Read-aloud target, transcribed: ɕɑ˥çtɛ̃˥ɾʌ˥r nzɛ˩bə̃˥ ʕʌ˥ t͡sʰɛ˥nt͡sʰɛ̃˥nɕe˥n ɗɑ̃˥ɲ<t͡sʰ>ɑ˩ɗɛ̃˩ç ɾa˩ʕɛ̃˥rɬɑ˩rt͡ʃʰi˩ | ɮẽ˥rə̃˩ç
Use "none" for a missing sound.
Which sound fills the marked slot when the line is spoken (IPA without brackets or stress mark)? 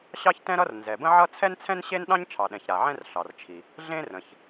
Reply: t͡ʃʰ